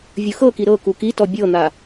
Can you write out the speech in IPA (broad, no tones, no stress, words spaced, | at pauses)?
vʲɯxɤki ɾɤ kukitɔ bʲɤn̪a